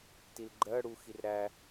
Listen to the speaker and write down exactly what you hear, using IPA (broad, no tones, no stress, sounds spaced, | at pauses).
t i l ɡ͡ǃ ɜ ɽ u x i r ɾ æ